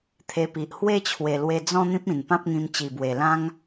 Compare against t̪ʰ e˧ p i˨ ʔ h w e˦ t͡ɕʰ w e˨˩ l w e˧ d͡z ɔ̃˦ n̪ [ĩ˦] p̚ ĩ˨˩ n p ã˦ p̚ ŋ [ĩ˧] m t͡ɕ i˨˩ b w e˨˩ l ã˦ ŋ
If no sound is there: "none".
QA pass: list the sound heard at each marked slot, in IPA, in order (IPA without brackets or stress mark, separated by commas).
ĩ˦, ĩ˧